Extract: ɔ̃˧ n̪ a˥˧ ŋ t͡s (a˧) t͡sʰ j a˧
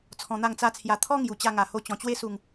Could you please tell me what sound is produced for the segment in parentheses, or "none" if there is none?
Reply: a˦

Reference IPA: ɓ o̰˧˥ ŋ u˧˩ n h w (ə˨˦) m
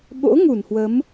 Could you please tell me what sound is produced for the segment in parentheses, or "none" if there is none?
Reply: ə˨˦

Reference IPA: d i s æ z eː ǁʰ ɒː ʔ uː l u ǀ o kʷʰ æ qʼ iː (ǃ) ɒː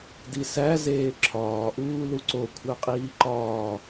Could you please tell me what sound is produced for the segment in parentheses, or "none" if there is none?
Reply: ǃ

